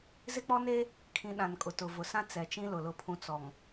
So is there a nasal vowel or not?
yes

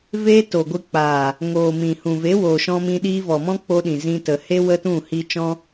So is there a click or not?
no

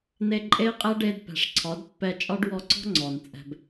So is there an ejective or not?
yes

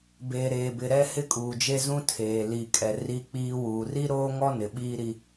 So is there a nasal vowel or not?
yes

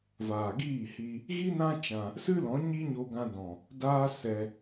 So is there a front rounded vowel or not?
no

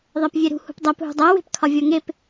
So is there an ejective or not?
no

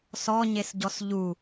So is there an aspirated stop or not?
no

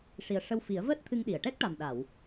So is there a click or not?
no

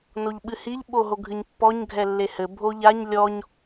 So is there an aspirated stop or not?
no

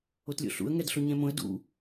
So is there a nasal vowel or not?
yes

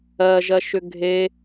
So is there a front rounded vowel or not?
yes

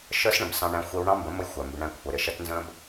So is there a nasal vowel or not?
yes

